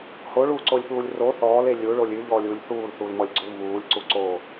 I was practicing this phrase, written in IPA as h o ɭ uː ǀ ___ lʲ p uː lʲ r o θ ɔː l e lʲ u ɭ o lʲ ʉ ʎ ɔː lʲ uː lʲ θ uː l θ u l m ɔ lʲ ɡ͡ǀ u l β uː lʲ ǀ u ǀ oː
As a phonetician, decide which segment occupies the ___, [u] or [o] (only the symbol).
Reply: o